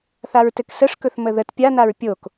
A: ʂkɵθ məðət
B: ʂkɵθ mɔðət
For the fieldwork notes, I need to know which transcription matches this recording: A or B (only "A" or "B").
A